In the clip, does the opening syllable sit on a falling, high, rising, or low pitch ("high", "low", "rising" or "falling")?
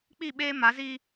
falling